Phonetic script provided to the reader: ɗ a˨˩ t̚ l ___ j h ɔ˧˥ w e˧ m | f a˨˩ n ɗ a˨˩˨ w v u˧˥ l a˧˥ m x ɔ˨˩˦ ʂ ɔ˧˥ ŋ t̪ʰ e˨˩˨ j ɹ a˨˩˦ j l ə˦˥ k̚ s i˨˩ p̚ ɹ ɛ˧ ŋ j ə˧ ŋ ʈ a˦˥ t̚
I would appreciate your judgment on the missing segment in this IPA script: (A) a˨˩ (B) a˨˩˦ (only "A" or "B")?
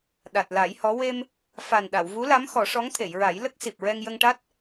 B